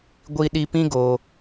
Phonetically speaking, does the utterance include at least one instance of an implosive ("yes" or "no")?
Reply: yes